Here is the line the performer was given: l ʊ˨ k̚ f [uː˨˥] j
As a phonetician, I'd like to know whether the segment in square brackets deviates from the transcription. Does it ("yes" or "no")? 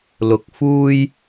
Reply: yes